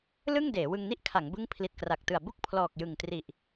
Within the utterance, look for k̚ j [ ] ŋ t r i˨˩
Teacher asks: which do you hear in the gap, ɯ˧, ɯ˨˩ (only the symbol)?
ɯ˨˩